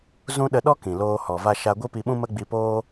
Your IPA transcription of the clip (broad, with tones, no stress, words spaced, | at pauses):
zũ˦ ɗə˧ɗɔ˦kĩ˨ loː˧hɔ˨ va˦ʃa˦ ɡʷi˦pi˧ɓũ˦ mə˦ɡ͡bi˧poː˦